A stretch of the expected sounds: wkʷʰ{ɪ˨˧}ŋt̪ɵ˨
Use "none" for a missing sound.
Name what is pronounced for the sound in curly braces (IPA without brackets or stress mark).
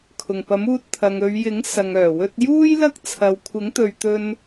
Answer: ɪ˨˥